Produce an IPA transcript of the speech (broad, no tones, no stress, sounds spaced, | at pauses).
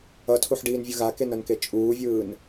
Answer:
ʌ tʰ u ħ ɖ iː n vʲ ɯ ɣ a k e n ʌ n k e t͡ʃʼ uː vʲ ɯː n